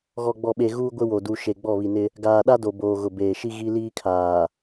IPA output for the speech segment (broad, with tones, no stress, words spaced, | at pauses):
ɣɔ˨ɡ͡bɔ˨ɓe˨ ɣuː˦ɡʷɪ˦ wo˨ du˨ ʃe˨ɡ͡bɔ˦˨βi˨nɪ˦ | ɡaː˨ɗa˦ do˨boː˨ɣʊ˨ beː˨ʃi˦ɣi˦liː˦ kʰaː˨